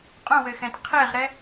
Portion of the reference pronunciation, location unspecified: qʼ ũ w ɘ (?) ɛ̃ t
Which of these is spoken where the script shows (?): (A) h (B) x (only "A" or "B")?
B